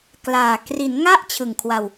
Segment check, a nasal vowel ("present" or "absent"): absent